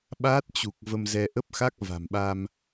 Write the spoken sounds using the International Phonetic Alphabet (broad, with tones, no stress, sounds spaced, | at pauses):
ɓ aː˦˥ t̚ t͡ɕ u˨˩ k̚ v ə˧ m z ɛ˧ ʔ ə˦˥ p̚ x a˦˥ k̚ v a̤˨˩ m ɓ a˧ m